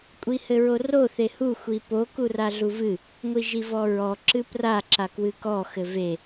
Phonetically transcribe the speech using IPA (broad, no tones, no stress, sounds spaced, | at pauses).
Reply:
kʷʼ i h ɘ ɹ o r o θ e h u xʷ i p o k u r a ɮ u v ɨ | ŋʷ i ʒ i v ɔ ɹ ɔ ǁ ɨ p r a ǁ a k w ɨ k ɔ x ɘ v e